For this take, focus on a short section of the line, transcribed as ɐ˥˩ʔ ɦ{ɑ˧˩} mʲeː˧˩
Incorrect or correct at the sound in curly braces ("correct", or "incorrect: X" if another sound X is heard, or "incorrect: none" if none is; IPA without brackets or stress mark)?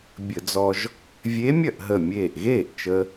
incorrect: ə˧˩